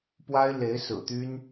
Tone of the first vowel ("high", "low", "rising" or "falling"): high